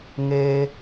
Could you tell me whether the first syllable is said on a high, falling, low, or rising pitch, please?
high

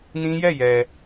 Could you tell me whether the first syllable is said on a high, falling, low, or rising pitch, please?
high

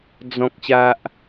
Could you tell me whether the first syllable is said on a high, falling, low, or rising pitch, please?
low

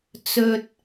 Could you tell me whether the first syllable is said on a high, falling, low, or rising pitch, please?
high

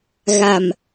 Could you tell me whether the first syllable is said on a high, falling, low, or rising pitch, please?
low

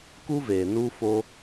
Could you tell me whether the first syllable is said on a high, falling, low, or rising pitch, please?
high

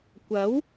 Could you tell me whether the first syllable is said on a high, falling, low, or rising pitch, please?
rising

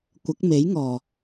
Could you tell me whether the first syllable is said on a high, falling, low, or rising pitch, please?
rising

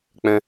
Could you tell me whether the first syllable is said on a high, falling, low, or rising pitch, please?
high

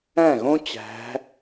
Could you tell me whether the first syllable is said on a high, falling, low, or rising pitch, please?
falling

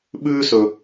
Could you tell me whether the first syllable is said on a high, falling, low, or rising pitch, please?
high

